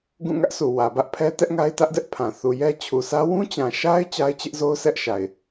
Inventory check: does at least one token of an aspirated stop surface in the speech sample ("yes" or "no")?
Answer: yes